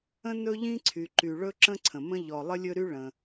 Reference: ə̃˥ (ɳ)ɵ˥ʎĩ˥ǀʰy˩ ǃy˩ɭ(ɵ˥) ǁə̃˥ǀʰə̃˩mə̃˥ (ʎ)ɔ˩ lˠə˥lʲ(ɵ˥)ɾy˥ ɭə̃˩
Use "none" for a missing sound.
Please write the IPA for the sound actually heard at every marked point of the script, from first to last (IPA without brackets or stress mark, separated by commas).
n, ɵ˥, ʎ, ɵ˥